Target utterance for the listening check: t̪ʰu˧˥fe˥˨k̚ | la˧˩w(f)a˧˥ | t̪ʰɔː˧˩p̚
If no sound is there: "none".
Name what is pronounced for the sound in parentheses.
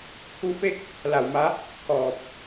m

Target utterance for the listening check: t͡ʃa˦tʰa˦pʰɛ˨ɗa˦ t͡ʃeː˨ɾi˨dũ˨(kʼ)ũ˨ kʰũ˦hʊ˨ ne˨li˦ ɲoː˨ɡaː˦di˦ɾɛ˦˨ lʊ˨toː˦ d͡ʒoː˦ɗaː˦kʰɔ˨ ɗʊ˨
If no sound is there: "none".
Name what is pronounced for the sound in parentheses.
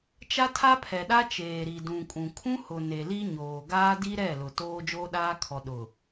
kʼ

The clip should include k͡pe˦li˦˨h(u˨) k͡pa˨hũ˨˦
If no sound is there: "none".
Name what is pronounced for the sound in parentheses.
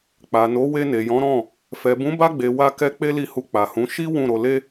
u˧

